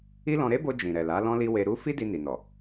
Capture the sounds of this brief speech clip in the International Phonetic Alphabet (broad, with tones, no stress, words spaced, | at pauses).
i˦lɔ̃˧ ɾe˦bo˧ d͡ʒĩ˨ɾɛ˨la˨˦ lɔ̃˦li˦ we˧ɾu˦ fi˦di˧ ni˨nɔ˨